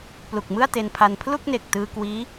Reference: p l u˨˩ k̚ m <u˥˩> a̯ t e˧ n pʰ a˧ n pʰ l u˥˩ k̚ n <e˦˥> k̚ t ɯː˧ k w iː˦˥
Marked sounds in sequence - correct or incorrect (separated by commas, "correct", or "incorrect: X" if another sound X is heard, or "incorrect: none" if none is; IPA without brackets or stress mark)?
incorrect: ɯ˥˩, incorrect: e˨˩